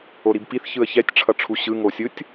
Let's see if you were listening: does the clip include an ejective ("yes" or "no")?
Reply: no